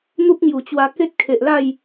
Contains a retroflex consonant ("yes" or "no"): no